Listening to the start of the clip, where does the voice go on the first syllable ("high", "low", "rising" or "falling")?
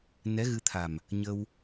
rising